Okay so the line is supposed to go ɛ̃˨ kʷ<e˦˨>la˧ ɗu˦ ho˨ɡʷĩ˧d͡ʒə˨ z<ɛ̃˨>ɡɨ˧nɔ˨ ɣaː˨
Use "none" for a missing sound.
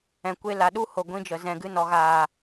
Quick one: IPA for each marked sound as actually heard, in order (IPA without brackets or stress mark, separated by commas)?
e˦, ɛ̃˨